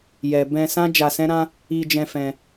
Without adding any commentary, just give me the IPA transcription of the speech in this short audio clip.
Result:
jɛ˨ bɛ̃˧ sã˦d͡ʒa˧sɛ̃˦ɾã˦ | i˧d͡ʒɛ̃˧fɛ̃˧

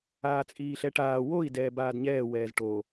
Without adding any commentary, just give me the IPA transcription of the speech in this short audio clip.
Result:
aːt͡sʼiːɬɛʈaː woi̯ dɛːbaːdɲɛː wɛːzʈo

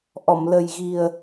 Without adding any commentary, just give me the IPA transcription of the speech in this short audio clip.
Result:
ʔɔ˨˩˨mlə˨˩jɣi˨˩ə̯

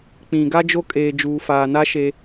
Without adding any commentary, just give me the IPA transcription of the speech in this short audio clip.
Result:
k͡pĩ˨ ɡa˦d͡ʒo˦ kʼeː˨d͡ʒuː˨faː˨na˦ ʃe˦

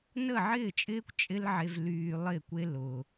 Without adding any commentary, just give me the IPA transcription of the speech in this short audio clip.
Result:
nə˦˨ʕɪː˦˨t͡ʃʼɪː˦kʷ t͡ʃʼɪ˦lʕe˧v lyː˧lˠɪ˦˨kʷe˦ lʊ˧

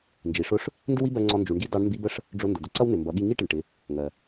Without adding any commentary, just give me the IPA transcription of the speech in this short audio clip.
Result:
nd͡ʒi˩˧ʂʊ˧˥ʂ | ndɪ˥wi˥bɜ˧ŋ͡ǀɔ˧ nd͡ʒu˩˧ɳɡi˧˥ dɑ˧˥ɳmbi˧˥bə˥ʂ | ɖ͡ʐʊ˧ ndʊ˩d̪ʊ˧ǀʌ˥w nɪ˩mbʌ˩˧ɠi˧ ŋi˥ʈɪ˩ɳ ʈɪ˩˧ | ŋɜ˩

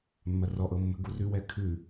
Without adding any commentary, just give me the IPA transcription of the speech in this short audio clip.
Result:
mːɐrɔ ʔɤmːə̤ ɡurʉ wɛkʰʉ

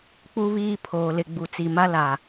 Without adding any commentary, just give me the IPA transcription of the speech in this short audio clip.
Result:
k͡pu˦βiː˦ pʰoː˨lɪ˨ ɡ͡bu˨t͡si˨ma˦ la˨

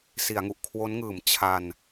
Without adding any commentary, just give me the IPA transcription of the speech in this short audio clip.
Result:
si˩˦a̯ŋu˨˩ʔkʰwo˦˥nŋɯː˨˩m t͡ɕʰa˧n

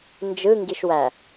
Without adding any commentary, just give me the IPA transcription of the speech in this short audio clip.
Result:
nd͡ʒɯŋɡiʃwæ

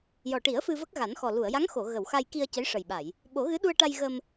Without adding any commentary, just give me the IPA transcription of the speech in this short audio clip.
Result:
jɔ˨˩ʈi˨˩˦ə̯ fɨ˧və˦˥k̚ɣa˨˩˦nxɔ˨˩ lu˨˩˨ə̯ja˧˥ŋxo˨˩˨ ɣə˨˩˨wxa˧jki˧ə̯ cə˧˥jʂə˨˩jɓa˨˩˨j | ɓo˨˩˦ɣɨ˧˥ɗu˧ə̯ʈa˧j ɣə˧m

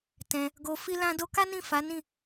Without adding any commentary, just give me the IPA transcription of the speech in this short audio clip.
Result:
tɛ̃˧ | ɡo˧ fi˦lã˦do˦ ka˦nĩ˦˨ fa˨˦ nĩ˦˨

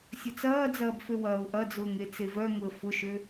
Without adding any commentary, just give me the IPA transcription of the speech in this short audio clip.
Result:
sʲɐt͡sɐːd͡zɐːb føwɐːʊ̯ʔɐd͡zʊːŋ et͡sevœŋʊə̯ fʊʃø

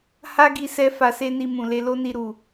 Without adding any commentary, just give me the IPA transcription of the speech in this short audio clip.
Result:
ha˦ɡi˧ sɛ˦fa˧se˦ni˧ mũ˨le˧lo˦ni˧ ɾu˨

